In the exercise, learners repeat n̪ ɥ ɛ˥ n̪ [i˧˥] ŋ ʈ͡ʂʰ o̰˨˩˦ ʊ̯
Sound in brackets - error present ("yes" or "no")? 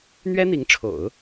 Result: no